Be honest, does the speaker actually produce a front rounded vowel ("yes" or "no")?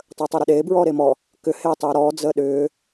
yes